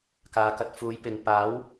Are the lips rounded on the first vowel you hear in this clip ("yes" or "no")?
no